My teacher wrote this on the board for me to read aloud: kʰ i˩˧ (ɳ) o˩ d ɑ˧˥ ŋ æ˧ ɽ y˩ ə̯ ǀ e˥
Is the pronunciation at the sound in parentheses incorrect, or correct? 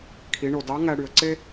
correct